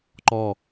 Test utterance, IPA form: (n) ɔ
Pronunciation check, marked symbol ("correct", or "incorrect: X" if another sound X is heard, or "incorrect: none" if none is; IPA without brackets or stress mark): incorrect: ǃ